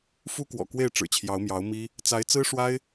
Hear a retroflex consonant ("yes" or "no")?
yes